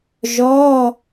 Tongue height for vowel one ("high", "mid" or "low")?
mid